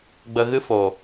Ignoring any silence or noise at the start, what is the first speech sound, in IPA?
ɡ͡b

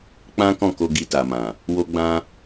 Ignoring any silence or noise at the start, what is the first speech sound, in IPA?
k͡p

